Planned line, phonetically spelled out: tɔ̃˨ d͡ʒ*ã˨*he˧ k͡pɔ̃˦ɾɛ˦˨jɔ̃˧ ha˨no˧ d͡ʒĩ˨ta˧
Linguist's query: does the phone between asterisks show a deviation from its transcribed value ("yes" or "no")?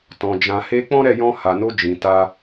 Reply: no